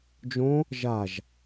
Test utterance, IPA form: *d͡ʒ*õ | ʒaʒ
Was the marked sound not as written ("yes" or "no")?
no